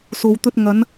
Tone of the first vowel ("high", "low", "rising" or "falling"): low